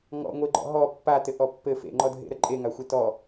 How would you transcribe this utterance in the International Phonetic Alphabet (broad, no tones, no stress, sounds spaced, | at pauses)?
ŋ ɔ̰ ŋʷ e ɡ͡ǃ ɔ̰ ɦ ɔ pː a t ɘ ʔ ɔ pː ɘ f ḛ ŋ͡ǃ ɔ dʱ ḛ ɾ ə ǃʼ e ŋ a xʷ e t ɔ